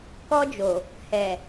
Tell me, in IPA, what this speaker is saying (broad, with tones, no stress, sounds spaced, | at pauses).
k ɔ˧ d͡ʒ o˨ | h ɛ˨